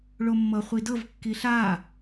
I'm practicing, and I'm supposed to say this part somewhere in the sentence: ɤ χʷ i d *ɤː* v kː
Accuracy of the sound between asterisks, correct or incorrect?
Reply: incorrect